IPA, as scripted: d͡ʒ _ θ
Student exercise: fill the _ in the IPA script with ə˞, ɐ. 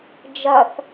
ɐ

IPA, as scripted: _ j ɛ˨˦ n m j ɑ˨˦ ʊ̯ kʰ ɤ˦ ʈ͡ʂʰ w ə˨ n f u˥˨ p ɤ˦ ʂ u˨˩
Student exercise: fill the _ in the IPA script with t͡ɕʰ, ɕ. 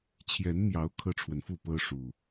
t͡ɕʰ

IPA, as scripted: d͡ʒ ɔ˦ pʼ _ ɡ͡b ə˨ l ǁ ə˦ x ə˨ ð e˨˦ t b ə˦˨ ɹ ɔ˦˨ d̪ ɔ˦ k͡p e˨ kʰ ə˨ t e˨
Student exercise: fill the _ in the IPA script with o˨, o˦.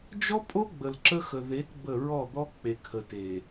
o˦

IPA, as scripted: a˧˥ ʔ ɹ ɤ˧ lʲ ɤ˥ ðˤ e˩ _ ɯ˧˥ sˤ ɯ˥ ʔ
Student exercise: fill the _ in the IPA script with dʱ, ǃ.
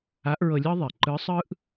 ǃ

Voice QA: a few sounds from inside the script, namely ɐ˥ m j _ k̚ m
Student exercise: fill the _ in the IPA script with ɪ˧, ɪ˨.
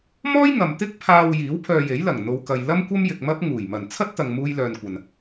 ɪ˨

